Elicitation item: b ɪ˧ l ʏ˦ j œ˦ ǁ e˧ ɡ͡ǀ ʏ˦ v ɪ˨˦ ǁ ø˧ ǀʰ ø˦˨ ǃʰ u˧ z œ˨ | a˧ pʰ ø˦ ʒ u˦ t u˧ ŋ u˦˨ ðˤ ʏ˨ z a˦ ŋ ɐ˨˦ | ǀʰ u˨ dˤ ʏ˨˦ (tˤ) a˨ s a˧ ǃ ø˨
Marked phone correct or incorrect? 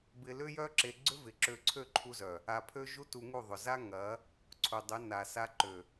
incorrect